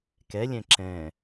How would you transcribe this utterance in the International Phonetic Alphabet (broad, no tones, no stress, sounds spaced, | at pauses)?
k ɛ lʲ ɛ̃ ǁ ɛ̃